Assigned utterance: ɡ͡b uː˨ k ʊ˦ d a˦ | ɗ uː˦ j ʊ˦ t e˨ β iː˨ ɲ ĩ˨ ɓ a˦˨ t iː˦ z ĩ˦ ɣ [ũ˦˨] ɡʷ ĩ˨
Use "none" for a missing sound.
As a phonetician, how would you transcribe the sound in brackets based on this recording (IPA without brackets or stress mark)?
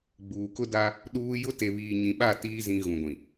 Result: ũ˨